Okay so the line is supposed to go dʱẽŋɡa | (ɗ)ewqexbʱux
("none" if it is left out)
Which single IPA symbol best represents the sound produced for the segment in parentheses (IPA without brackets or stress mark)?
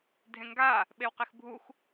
ɓ